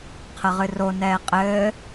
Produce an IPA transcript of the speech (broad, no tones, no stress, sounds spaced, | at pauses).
qʰ ə ʁ ɨ r o n ɛː qʼ ɘː